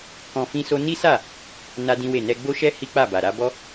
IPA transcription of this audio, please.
kɔ̃˧fĩ˦so˦ ni˦sa˦˨ | na˦dĩ˦we˦˨ nɛ˧ɡ͡bo˦ʃɛ˦ hi˦k͡pa˦˨ba˨ ɾa˨˦bɔ˦

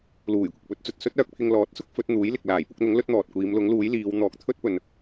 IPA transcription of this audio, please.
luː˨˩jkʷɪ˨k̚pɵ˨˥t̚t͡sɵ˨t̚ sɵ˥t̚œː˧k̚pʰɪ˧ŋ lɔː˨˥t̚sʊ˥k̚ fɵ˨˥t̚n̪uː˨˥jlɪ˨k̚ laː˨˩jpʊ˨˥k̚n̪ʊ˨˥ŋ lɵ˥t̚n̪ɔː˨t̚kʷiː˨˧m lʊ˨˥ŋluː˨˥jliː˨˧w n̪ɔː˨˥k̚t̪ʰɵ˥t̚pɵ˨n

